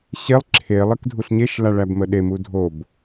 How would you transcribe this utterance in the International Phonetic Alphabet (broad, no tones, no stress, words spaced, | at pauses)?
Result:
ɕelˠ ǁʰe lˠekdʱuɬɲeʃ laɭæbməɗe mudʱob